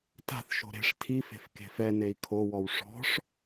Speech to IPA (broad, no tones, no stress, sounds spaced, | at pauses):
t a̤ θ ʃ o̤ ɾ e̤ ʂ tʰ i f e̤ f k e̤ f ɛ n e i̯ kʰ o w ɔ w ʂ ɔ̤ ʂ